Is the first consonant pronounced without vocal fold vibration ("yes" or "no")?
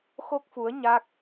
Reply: yes